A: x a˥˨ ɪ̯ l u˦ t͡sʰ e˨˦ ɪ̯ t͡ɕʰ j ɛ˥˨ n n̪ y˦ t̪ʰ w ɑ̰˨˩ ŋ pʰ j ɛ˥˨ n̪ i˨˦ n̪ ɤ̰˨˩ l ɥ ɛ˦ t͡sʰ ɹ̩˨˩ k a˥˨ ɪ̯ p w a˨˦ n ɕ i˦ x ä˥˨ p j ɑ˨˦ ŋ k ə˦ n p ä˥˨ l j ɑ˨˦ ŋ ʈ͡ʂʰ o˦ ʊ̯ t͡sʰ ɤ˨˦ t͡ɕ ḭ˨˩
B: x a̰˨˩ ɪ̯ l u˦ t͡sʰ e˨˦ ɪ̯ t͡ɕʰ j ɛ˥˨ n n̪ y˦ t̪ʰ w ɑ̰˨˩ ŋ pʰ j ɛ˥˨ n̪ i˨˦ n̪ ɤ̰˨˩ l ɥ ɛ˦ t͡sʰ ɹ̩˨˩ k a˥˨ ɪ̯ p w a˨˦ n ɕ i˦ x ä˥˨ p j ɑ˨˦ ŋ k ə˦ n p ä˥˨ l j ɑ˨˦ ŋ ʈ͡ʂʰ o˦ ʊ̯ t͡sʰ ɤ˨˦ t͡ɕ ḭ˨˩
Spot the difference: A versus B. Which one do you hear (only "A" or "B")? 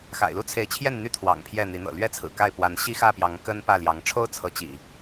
B